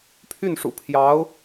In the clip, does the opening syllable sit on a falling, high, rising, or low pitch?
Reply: falling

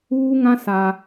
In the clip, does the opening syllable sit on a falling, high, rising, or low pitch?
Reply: high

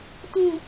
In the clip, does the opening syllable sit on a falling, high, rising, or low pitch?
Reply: low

